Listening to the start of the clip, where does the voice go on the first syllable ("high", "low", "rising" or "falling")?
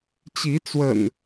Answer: rising